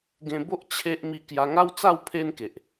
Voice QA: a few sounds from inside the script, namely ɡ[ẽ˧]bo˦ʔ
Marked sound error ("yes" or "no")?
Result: no